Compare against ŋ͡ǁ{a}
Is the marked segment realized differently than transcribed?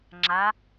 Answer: no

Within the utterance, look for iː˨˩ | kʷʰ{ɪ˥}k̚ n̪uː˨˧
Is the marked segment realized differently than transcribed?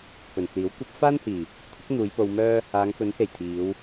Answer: no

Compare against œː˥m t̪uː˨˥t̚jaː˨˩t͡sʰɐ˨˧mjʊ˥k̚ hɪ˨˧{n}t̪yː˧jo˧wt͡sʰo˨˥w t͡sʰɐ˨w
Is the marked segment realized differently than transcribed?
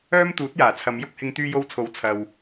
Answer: yes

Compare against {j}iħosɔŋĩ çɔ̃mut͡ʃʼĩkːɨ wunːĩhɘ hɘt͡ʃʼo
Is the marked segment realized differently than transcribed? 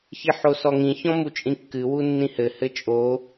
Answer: yes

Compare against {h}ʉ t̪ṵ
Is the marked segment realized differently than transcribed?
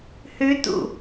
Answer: no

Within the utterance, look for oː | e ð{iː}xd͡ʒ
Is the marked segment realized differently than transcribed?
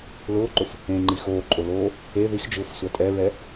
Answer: yes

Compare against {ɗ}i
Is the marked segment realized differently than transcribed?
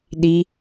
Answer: no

